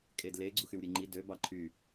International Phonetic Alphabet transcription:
kʼ e d l e ɡ͡ǀ u x y w ɾʲ e ŋ͡ǃ i d ø b ɑ ǃʰ y

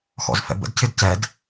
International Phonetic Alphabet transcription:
x ɔ̰ z f ɛ̰ b ə̰ d cʰ ɪ d c ɛ d

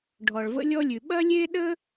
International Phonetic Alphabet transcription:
ɖʱ ɔ˩ ɭ v ə̰˥ lʲ ɔ˥ lʲ ʉ˩ ɓ ɐ˥ lʲ e˥ ɗ ə˥

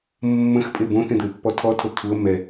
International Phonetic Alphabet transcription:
mː ə̃ x pʼ e b õ θ ẽ d̪ ɘ ɪ̯ pː ɔ tʰ ɔ tʰ o t̪ʰ u ə̯ m ɛ

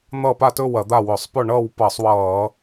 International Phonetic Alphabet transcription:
n̪ ʌː˥˨ p a˥˨ t ɵː˥˨ w ɐ˧˩˧ d̪ a˥˨ w ɵ˧˩˧ sˤ p ɵ˥˨ ɳ ʌː˥˨ w p ʌː˧˩˧ sˤ w ʌː˧˩˧

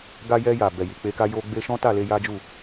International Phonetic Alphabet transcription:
ɡ a˧ j ɛ˧ j a˨ b ɛ˨ j i˨ k͡p e˧ k a˦ j o˦ ɡ͡b e˧ ʃ ɔ̃˦ t a˦˨ l e˧ j a˦ d͡ʒ u˦˨

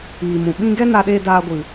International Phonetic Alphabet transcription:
iː˨ m ũ˨ ɓ ĩ˦ ɡ ɛ˦ n a˧ ɗ eː˧ d aː˧ ɡʷ ɨ˨

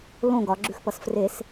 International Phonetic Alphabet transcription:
l õ ɡ ɒ ɡ͡ǁ ʉ x p ʌ s f r e s

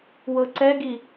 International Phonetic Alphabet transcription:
w ɤ ǀ ɛ ɡ i

